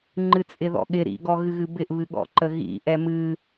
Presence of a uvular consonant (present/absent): absent